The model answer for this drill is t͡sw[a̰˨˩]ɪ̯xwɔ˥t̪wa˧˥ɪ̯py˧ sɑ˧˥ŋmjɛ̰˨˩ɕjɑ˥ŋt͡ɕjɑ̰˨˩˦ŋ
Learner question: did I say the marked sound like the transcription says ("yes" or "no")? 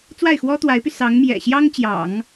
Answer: no